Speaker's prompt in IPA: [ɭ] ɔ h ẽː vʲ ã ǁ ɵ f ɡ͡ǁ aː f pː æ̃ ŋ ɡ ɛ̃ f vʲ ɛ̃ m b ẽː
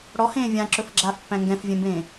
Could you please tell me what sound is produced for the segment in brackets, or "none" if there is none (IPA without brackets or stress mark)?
ɽ